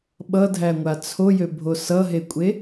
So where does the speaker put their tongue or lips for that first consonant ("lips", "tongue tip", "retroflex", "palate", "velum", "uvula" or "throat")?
lips